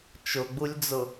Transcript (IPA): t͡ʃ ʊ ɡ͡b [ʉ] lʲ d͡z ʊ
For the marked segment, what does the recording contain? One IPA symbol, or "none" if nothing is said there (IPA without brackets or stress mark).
u